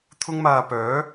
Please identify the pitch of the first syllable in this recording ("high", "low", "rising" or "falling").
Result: high